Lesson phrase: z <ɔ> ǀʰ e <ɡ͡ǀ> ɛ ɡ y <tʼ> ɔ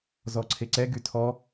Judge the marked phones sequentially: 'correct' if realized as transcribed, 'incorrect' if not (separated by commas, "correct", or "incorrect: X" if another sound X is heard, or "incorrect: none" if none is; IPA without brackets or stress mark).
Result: correct, incorrect: ǀ, incorrect: tʰ